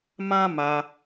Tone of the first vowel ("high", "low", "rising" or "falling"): high